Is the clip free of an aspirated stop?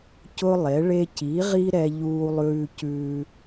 yes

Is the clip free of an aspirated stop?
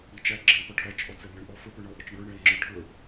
no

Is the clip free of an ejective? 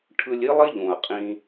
no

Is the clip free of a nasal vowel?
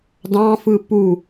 no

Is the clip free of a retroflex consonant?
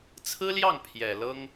yes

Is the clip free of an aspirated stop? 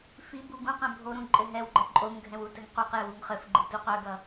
yes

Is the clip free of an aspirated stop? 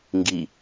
yes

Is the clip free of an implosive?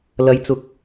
yes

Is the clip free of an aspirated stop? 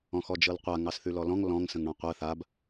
yes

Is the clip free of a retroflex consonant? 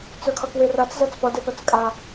yes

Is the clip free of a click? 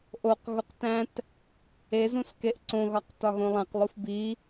no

